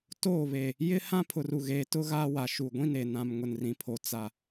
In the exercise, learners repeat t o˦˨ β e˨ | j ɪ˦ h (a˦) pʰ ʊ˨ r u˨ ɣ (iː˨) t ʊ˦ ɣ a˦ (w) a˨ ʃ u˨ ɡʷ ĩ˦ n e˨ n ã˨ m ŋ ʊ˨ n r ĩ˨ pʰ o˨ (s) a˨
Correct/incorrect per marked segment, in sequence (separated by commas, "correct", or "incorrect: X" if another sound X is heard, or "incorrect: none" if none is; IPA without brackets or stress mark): incorrect: ã˦, incorrect: eː˨, correct, incorrect: t͡s